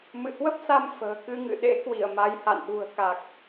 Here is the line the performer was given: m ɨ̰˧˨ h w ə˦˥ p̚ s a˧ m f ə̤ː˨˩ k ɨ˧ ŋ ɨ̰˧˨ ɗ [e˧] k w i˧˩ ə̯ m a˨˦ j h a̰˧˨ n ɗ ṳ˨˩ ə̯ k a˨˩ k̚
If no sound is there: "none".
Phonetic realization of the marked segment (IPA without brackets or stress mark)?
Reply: ḛ˧˥